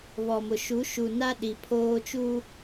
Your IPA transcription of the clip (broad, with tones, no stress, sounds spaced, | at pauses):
β ɔ˨ m ʊ˨ ʃ u˨˦ ʃ u˨ n a˦ ɗ i˨ pʰ oː˦ t͡ʃ u˦